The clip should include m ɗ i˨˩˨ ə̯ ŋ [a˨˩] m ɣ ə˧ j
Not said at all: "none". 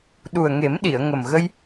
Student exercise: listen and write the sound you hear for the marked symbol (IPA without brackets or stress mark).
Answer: ə˨˩